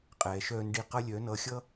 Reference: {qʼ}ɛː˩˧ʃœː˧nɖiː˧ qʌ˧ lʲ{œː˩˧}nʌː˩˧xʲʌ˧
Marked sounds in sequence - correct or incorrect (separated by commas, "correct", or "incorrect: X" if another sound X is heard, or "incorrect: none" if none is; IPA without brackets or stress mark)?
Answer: correct, correct